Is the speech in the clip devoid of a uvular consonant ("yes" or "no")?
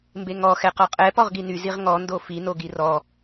no